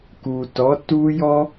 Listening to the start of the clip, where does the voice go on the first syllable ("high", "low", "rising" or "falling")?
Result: low